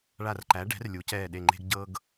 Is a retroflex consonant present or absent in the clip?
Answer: present